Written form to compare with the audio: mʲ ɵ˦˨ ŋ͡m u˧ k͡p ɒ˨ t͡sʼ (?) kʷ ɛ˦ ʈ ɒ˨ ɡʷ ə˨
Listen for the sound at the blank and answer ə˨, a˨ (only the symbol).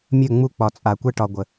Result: a˨